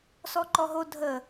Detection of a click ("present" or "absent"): present